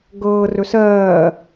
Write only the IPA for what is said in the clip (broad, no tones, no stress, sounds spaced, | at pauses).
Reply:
ɡ ɤː r ɵ s ɜː